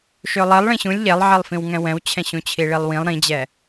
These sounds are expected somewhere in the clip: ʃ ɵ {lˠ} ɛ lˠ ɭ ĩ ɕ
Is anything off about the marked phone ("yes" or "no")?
no